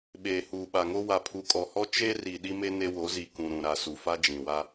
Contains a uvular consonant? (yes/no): no